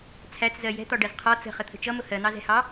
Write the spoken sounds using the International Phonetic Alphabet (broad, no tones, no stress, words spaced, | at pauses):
t͡sʰæt͡szɜ jɛ̤t̪ɒɖɜz qʰɒ t͡sə̤χət̪ʰə̤ t͡ʃʌmʊ hɜn̪ɑzɛ̤hɑ